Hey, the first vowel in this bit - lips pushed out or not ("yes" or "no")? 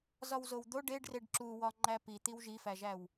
yes